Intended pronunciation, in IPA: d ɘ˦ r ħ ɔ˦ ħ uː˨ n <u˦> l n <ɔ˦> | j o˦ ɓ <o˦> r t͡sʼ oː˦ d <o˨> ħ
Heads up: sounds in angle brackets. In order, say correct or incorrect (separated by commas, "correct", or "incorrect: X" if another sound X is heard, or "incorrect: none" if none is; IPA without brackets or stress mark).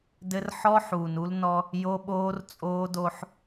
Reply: correct, correct, incorrect: oː˦, incorrect: o˦